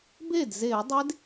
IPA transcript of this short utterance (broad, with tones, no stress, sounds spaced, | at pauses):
b e˥˩ d z e˧˩˧ dˤ e˦˥ d